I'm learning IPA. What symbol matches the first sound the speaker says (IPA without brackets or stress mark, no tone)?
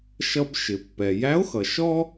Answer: ʃ